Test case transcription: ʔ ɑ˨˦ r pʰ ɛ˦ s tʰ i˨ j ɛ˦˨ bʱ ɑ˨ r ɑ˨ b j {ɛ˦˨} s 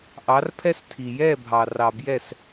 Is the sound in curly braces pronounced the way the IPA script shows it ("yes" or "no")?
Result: yes